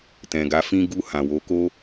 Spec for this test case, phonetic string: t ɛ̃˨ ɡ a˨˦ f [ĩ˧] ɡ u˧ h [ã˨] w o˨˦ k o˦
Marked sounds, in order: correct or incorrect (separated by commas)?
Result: correct, correct